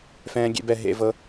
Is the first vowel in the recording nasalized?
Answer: yes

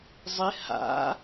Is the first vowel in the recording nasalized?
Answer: no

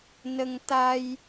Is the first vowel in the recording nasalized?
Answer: no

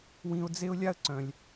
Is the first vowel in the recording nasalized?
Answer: yes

